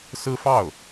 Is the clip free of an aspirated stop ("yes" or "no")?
yes